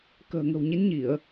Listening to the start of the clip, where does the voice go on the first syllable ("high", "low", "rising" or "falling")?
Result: low